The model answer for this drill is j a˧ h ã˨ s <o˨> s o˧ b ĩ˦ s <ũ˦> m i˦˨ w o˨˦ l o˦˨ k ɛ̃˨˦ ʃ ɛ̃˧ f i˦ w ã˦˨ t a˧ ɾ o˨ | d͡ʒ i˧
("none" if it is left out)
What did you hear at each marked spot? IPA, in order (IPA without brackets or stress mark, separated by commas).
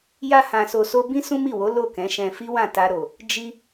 o˨, ũ˦